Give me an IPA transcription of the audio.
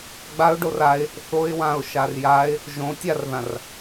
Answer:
ɡ͡b a ʊ̯ ɖ o r a ɪ̯ | θ o ɪ̯ w ã ʊ̯ ʃ a r j a ɪ̯ | ʒ õ tʲ a r ð ã r

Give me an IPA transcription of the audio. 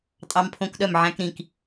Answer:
tʼ ɑ˦˥ m pʰ õ˦˥ k ɗ œ˥˨ m ʕ æ̃˦˥ k ɾ ĩ˥˨ k

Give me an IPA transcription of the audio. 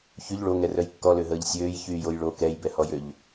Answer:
ç y ʎ ɭ o ŋ ɛ r œ j kː ɔ l ø ɦ əː ʎ sʲ øː j ç yː j o j ɭ o k ɛ j b ɛ h ɔ j ø ʎ

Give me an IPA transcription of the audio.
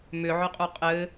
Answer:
m ʏ ʕ ʏ qʼ u qʼ ɘ

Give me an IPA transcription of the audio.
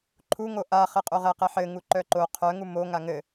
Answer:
ǃʰ u ŋ o ʔ a χ ɘ qʼ o ʁ ɛ q ɛ ħ ɘ ŋ u ǃ œ ǃ o qʰ œ ŋ u m o ŋ a ŋ ɘ

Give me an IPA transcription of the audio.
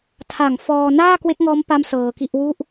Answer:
tʰ a˨˩ ŋ f ɔː˧ n aː˥˩ k w e˦˥ k̚ ŋ ɔː˦˥ m p a˦˥ m s ɤː˧ k i˥˩ ʔ w u˦˥ ʔ

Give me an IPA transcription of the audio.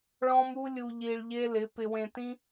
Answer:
ɭ ɔ̃˦ m u˦ lʲ u˧ ʎ i˧ ɭ ʎ e˦ l ɪ˨˦ p ɪ˧ w ẽ˧ t ĩ˦

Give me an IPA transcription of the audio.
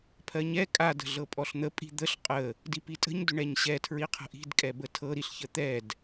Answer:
pʰ ɜ ɲ ɛ kʼ a d ə̤ ɮ ɤ pʼ ɔ ɬ n̪ ə pʼ i̤ d̪ ə ɬ qʼ ə | d i p i tʼ ə̤ ɲ d ʏ ɳ ɛ ɲ ɕ ɛ tʰ ɹ i qʰ ə̤ ʔ i̤ d kʼ ɛ b ə tʰ ɤ ɾ i ɬ ç ə t̪ ɛ d

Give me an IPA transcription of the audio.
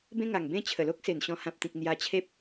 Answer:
b ẽ˦ ŋ a˨˩ ŋ b ẽ˥˧ t͡ɕʰ ə˨˩ l o˦ k̚ s e˨˩ n ɕ ɔ̃˧ h ã˨ p̚ t̪ ĩ˨ k̚ n̪ j a˧ t͡ɕʰ e˦ p̚

